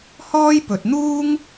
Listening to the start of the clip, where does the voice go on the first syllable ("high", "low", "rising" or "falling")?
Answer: high